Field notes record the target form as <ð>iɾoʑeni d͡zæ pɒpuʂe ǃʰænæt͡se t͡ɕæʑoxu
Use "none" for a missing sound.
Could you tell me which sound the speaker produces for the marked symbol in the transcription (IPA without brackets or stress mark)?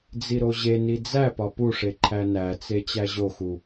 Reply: d͡z